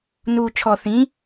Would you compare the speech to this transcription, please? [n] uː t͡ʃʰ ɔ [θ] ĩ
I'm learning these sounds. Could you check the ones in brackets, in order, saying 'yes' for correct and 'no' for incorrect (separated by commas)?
yes, yes